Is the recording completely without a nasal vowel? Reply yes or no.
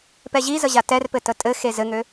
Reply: yes